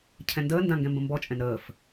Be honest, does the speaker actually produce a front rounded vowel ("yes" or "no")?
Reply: no